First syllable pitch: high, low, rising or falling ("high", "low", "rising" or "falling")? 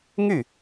falling